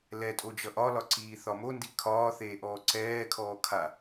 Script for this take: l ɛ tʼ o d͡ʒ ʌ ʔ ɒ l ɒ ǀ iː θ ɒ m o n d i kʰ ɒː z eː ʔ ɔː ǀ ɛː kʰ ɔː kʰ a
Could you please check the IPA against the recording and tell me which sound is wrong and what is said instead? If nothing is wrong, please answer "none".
z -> θ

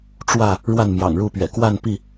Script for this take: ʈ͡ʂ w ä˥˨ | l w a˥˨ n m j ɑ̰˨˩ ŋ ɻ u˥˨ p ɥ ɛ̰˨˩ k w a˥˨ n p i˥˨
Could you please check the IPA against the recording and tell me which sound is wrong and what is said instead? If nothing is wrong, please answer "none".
l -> ɻ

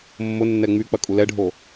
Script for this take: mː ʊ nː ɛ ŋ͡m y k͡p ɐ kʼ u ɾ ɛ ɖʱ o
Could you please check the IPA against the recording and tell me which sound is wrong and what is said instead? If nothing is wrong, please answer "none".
ɾ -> l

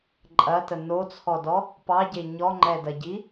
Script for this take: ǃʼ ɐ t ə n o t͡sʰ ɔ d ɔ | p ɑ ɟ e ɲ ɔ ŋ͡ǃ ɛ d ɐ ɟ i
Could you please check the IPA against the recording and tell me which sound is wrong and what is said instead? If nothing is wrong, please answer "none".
none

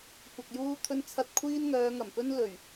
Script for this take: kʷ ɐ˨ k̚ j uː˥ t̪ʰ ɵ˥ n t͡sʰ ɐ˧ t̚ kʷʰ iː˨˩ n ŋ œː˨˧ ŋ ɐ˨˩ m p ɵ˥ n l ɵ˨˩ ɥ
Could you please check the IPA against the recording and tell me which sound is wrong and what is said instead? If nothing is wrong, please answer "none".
iː˨˩ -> iː˥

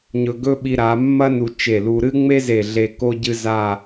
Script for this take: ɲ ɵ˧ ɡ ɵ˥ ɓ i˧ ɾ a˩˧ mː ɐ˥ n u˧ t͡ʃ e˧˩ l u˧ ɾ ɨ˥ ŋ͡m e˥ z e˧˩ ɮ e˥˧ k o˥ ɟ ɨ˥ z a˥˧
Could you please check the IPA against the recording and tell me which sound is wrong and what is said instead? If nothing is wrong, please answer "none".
none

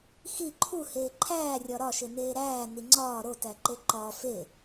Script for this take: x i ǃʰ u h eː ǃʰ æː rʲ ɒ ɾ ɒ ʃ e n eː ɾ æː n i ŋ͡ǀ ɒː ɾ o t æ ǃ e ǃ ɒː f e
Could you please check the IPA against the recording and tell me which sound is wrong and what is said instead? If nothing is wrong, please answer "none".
none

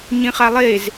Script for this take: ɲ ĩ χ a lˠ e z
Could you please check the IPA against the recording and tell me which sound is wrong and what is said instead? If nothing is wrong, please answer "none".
none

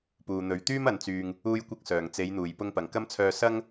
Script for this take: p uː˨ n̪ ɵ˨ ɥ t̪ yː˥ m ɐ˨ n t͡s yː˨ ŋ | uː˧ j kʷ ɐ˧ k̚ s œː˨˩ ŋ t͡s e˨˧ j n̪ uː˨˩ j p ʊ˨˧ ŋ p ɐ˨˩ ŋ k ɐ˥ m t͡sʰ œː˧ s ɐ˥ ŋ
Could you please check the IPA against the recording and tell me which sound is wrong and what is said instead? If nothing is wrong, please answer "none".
ʊ˨˧ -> ʊ˧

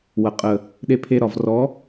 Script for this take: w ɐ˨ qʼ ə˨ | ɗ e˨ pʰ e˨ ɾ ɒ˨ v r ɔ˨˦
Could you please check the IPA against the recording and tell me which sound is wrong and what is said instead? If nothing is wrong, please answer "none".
none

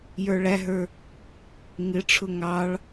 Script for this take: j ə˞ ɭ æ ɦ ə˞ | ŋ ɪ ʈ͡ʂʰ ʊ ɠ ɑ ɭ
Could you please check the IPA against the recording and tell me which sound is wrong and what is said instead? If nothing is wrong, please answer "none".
ɠ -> ŋ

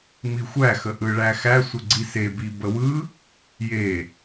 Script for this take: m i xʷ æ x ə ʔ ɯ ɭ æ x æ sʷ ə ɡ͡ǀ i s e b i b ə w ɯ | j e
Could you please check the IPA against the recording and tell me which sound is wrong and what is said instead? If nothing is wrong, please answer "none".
none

